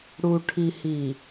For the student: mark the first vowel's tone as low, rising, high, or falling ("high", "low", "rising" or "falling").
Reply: low